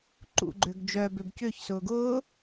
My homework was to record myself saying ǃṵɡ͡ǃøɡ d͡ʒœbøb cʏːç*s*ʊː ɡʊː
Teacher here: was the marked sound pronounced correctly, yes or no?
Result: yes